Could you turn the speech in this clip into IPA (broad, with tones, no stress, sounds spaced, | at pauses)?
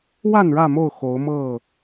w a˥˨ n ɻ ä˥˨ m o˥˨ ʊ̯ x o˨˦ ʊ̯ m ɤ˥˨